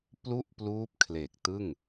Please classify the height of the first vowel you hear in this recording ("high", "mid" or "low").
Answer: high